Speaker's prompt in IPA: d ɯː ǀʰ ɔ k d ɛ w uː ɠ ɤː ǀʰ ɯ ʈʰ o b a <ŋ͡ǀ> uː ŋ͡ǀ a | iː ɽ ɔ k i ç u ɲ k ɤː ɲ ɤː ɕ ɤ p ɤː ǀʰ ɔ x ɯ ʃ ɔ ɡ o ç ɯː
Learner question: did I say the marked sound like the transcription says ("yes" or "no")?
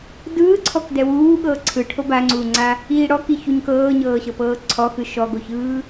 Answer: yes